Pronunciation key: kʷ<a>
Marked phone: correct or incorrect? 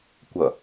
incorrect